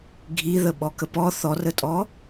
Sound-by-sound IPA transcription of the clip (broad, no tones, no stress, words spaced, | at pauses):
ɡʱiðə ɓɔkəpɔ θɔrətʼɔ